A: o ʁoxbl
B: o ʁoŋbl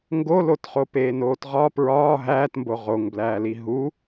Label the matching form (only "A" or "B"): B